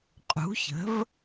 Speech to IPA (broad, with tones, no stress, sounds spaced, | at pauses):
qʼ ṳ˩˥ ç ə̤˩˥ v